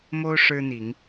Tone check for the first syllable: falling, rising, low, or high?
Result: high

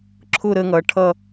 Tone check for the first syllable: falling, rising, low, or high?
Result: falling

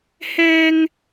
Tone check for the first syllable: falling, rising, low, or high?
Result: high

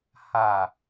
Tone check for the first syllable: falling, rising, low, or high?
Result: low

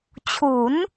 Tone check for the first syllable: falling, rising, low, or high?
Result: rising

